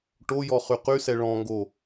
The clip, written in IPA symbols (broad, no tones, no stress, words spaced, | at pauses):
ʈojɔχy qysɛ ɭɔ̃ŋɡo